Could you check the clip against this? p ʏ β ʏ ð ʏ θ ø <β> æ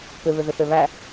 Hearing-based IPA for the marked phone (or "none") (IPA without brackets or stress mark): β